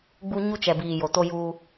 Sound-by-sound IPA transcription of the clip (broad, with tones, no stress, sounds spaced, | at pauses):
ɡ͡b u˦ ɲ u˦ t͡ʃ ɛ˨ b iː˨ j o˨ t o˦ j uː˦